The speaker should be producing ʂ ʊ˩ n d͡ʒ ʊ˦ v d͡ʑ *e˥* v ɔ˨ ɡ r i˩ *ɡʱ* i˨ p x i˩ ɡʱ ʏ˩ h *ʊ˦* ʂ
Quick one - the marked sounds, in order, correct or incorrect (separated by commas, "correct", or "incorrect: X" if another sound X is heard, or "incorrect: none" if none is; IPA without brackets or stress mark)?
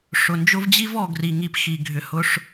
incorrect: i˥, incorrect: ŋ, incorrect: ʊ˨